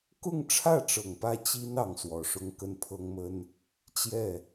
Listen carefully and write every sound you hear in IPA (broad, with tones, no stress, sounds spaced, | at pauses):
k ʊ˥˧ ŋ ʈ͡ʂʰ ä˥˩ ʈ͡ʂ ɤ˨˩ ŋ p ä˥˩ t͡ɕ i˥ n ɑ˧˥ ŋ s w ɔ˨˩ ʂ ʊ˥ ŋ k ə˥˩ n pʰ ɤ˥ ŋ m ə˥ n | t͡ɕ j ɛ˥˩